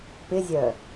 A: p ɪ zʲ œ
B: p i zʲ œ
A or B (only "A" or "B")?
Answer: A